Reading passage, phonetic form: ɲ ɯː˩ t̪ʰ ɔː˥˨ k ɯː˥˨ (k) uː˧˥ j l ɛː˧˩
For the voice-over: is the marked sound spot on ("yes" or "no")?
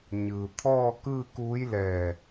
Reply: yes